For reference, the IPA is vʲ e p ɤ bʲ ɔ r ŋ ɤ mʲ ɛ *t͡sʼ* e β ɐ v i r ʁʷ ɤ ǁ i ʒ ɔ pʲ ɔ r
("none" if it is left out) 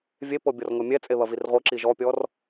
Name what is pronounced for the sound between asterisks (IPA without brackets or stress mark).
t͡sʼ